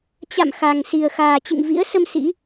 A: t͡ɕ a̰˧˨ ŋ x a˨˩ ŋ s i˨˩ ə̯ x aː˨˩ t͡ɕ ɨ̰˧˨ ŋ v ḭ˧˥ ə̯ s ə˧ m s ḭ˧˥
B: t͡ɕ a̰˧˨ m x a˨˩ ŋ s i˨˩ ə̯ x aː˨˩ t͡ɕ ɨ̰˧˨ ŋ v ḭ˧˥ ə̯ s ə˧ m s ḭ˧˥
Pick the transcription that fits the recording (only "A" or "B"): B